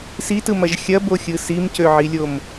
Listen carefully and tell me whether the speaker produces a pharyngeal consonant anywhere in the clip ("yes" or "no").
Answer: yes